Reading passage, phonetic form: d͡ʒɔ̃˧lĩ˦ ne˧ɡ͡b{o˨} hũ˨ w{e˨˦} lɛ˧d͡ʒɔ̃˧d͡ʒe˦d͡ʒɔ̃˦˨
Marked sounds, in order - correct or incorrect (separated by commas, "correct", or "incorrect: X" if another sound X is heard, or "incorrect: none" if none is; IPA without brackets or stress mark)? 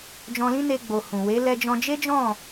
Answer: correct, correct